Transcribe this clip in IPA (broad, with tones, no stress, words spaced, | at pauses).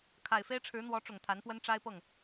kʰa˨˩ɪ̯fe˥ɪ̯ʈ͡ʂʰɻ̩˧˥n̪wɔ˧˥ ʈ͡ʂʊ˨˩ŋt̪ʰa˧˥npwə˥n ʈ͡ʂa˥ɪ̯pɤ˥˩ŋ